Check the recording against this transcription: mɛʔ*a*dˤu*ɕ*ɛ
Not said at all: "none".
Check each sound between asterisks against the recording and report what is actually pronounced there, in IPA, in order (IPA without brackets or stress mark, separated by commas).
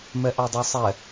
a, sˤ